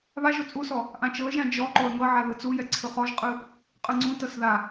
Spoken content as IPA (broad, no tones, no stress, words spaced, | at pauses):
βaʒo t͡sʼusɔ | ʔãt͡ʃɤə̯ʒã d͡ʒɔ ǃoə̯ŋɤʕa ðɯt͡sujɛ ǀʰɯχɔʒqʼɯ | qʼɯŋ͡ǀũtɤs ða